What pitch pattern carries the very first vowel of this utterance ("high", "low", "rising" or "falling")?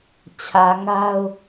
low